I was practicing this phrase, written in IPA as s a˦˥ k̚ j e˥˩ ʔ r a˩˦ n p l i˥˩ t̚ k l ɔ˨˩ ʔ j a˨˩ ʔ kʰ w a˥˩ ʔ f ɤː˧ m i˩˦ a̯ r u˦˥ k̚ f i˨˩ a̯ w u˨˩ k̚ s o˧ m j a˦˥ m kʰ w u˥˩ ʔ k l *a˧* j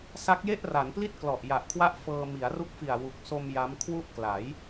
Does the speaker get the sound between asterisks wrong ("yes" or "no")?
yes